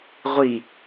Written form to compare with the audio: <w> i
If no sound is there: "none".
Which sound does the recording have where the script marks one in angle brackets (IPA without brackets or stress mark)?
ʁʷ